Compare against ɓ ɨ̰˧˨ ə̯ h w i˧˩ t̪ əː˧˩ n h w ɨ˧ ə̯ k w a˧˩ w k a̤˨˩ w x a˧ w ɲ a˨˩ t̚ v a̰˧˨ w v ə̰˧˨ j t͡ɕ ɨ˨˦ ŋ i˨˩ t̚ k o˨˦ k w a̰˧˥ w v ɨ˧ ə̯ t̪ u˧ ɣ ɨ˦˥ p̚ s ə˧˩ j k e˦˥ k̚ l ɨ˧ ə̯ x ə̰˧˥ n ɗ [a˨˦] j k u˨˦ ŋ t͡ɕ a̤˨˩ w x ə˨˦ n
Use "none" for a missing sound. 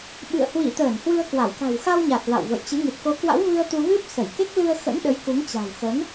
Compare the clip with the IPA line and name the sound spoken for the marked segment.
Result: ə˨˦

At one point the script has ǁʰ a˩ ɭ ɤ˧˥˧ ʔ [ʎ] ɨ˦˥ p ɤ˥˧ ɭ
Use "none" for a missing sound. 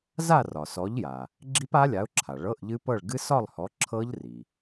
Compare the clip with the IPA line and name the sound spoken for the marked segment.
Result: ʎ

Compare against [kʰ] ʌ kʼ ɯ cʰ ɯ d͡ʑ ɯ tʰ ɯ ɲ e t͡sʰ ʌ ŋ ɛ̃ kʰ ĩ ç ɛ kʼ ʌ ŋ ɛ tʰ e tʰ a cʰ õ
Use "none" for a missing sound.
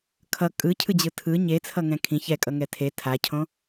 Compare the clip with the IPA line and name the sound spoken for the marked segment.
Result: kʰ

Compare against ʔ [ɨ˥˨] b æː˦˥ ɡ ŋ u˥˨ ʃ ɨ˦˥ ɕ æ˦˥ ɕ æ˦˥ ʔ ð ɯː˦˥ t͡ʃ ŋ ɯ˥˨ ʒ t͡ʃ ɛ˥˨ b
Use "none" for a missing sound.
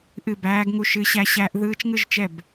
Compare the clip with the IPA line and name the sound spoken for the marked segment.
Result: ɨ˥˨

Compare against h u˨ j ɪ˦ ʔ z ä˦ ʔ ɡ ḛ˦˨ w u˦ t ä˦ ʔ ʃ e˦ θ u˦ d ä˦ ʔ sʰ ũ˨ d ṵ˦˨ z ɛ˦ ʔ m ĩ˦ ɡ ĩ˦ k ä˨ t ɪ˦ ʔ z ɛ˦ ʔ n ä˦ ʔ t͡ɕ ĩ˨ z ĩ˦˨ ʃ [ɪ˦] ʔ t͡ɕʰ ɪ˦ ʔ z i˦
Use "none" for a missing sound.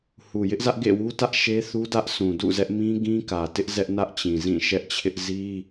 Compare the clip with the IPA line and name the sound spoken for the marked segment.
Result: ɛ˦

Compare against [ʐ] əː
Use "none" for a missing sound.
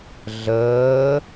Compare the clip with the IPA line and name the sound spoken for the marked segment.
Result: ɮ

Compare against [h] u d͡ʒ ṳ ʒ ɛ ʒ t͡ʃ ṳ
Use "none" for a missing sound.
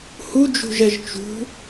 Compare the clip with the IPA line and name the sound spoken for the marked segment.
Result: h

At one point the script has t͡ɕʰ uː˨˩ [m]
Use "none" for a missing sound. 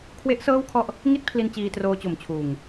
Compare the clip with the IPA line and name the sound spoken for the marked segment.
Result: ŋ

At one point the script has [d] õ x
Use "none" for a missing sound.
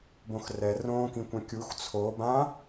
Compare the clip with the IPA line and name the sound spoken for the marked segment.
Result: b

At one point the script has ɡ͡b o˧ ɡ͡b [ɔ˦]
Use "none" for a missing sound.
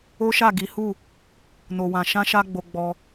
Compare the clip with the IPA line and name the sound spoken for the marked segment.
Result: ɔ˧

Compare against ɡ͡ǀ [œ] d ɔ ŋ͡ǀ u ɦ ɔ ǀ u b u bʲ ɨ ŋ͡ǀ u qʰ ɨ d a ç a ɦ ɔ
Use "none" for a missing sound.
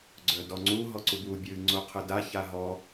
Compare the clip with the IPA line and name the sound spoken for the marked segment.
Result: œ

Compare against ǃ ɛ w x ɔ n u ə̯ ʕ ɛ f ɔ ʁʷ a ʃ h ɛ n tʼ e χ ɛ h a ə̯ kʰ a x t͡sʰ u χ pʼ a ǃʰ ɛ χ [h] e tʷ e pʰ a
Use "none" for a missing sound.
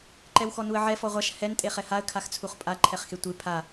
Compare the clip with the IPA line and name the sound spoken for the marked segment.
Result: x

